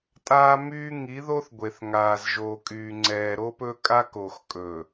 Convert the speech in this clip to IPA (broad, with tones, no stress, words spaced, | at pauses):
tʼaː˦myː˦ ŋi˨˦ðo˦θɡʷe˨θ ŋaː˨zʒoː˨kʼyː˨ ŋ͡ǀɛː˨ ɾo˦pɵ˦kʼa˦ko˨x kʼɵ˨